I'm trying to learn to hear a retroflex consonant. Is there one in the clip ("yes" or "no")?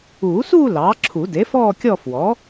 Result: no